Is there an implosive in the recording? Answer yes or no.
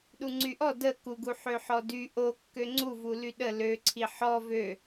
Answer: yes